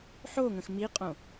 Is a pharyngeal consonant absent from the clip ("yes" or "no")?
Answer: no